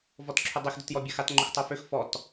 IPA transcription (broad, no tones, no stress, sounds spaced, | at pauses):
v ɔ t ǁʰ ʊ dˤ i x d ʊ t j ɔ bʲ a x a t ŋ͡ǃ ʊ x tˤ o f ø x f ɔ t